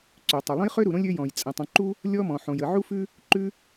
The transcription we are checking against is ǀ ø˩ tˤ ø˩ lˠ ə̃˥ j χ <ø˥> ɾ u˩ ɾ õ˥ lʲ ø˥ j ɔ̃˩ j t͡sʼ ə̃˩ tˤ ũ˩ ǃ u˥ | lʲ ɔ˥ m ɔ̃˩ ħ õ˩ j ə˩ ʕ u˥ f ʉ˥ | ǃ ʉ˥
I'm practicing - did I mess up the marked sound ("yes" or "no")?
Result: no